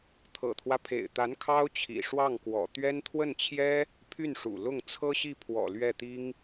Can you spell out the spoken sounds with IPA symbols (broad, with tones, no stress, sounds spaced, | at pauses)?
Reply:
t̪ʰ ɤ̰˨˩ t̪ʰ w ä˦ pʰ ḛ˨˩ ɪ̯ t̪ a˧˥ n kʰ ɑ˥ ʊ̯ t͡ɕʰ ḭ˨˩ ʂ w ɑ˥˩ ŋ k w ɔ̰˨˩ t̪ ɥ ɛ˥ n t̪ʰ w ə˥˩ n t͡ɕʰ j ɛ˥ | pʰ y˥˩ n ʂ ṵ˨˩ l ʊ˥˩ ŋ t͡sʰ ɤ˥ ɕ i˥˩ pʰ w ɔ̰˨˩ l ɥ ɛ˥˩ t̪ i˥ ŋ